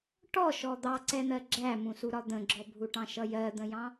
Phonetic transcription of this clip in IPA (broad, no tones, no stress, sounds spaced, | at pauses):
ʈ ɔ ʃ ɔ d̪ ɑ ǀ ɛ n̪ ɜ ɡ͡ǁ æ m ũ s u ɾ ɒ d̪ ə̃ ɡ͡ǁ ɔ bʱ u ʈ ɑ̃ ʃ ʌ j ɜ d̪ ə̃ j ɑ̃